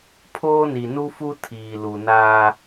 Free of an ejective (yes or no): yes